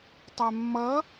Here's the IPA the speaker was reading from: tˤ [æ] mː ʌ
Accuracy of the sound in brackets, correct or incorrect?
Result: correct